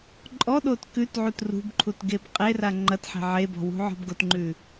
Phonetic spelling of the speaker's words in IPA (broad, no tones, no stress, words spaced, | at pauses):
ǃʼɔɗot kʉtʕut rṳbǃʰutɡeb qʼera ŋ͡ǃɐtħe̤ ʕebɔ̤wṳʕɔ̤b ɡotŋ͡ǃʉ